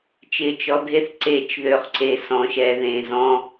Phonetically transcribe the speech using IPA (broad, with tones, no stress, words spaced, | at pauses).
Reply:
t͡ʃɪ˧t͡ʃɔ˧dʱe˦θ ǀe˦˨t͡ʃðø˧χǀe˧ sɔ̃˨ ʃɛ˧ðẽ˧zɔ̃˦